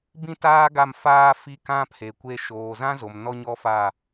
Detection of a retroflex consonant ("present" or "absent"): absent